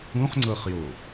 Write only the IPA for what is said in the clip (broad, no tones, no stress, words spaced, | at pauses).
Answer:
ũχŋ͡ǀɤχjo